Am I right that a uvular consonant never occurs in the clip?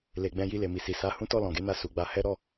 yes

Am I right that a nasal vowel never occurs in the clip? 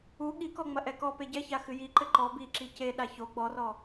yes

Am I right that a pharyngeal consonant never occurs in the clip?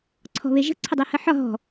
no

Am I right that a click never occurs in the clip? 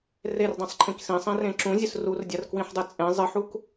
no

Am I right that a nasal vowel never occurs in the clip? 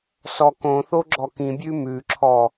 no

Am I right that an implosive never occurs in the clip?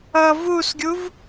yes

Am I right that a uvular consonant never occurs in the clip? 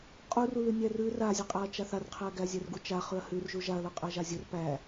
no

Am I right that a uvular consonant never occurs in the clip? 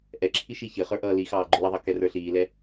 no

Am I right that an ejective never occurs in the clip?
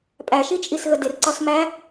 no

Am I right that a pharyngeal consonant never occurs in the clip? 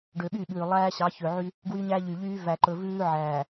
no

